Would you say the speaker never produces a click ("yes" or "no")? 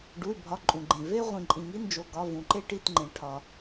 no